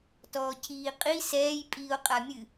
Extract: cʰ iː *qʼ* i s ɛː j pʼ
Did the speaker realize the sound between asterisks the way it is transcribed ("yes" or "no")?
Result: yes